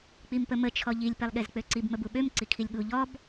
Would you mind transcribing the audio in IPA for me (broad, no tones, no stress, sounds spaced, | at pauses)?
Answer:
k͡p i m p ə m ə t͡ʃʰ ɔ ʎ i lʲ p e lˠ ɠ e z k͡p ø ǀ i b m ə b u ɓ ø m ǀ i kʰ i lʲ ɠ u ʎ ɔ b